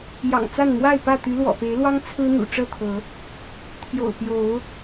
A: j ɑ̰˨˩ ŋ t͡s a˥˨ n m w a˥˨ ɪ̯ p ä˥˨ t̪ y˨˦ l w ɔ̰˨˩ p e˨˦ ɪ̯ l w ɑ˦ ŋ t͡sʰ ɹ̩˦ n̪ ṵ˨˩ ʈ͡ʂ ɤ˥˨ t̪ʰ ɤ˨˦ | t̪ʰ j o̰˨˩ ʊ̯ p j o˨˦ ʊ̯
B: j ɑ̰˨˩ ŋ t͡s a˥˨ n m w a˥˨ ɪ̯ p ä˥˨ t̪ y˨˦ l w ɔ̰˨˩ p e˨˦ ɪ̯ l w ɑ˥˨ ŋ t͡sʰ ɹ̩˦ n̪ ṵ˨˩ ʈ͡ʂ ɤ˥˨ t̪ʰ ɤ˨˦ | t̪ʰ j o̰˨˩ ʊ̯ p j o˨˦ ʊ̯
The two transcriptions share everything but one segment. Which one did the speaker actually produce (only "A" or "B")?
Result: A